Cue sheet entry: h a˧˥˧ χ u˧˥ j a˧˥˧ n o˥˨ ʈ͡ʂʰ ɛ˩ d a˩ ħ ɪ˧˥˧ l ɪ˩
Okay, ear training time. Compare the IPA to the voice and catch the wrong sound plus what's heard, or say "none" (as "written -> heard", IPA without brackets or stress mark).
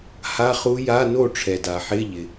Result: l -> ʎ